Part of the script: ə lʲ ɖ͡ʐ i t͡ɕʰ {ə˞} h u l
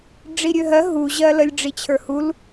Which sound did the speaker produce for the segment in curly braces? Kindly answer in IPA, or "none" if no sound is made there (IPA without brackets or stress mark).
ə˞